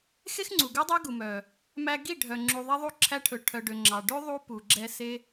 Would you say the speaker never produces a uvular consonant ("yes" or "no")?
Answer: yes